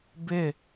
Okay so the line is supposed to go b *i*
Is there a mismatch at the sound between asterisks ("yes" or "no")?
yes